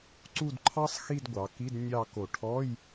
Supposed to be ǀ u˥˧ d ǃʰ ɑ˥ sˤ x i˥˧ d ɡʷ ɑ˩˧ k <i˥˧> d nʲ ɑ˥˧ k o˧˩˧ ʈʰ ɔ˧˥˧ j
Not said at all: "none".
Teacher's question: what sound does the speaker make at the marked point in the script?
i˧˥˧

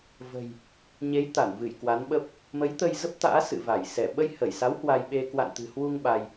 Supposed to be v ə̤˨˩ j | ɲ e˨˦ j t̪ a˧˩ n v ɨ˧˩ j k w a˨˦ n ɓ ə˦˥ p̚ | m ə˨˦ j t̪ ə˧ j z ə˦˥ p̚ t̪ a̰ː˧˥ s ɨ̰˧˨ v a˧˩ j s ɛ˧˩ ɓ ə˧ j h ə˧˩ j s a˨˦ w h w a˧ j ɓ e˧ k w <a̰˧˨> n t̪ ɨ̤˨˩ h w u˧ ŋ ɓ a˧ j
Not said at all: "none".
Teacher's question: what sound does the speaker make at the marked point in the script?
a̰˧˨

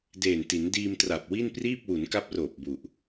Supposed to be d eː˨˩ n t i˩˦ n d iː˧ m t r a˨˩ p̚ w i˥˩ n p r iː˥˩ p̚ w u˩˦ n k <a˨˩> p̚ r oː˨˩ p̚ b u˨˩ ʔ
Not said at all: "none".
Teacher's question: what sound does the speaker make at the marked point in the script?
a˦˥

